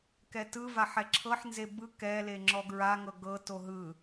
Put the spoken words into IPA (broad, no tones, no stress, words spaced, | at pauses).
kɛtɯvaħ ɛǁʰɤħnze bɯ kɛle ŋ͡ǁɔɡɹaŋɤ ɡɤto ɦɯ